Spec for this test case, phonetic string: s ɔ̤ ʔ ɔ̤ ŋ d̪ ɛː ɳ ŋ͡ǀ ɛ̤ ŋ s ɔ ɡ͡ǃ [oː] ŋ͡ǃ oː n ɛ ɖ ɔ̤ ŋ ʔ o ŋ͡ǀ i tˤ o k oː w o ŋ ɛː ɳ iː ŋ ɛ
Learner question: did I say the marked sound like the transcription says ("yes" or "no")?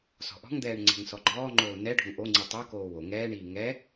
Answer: no